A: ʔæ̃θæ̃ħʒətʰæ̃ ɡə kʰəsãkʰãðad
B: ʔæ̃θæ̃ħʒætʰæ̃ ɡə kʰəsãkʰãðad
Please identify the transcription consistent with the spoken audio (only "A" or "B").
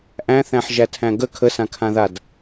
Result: B